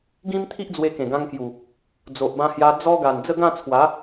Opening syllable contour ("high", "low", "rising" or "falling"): high